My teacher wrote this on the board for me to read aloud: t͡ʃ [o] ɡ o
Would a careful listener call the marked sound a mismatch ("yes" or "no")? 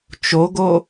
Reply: no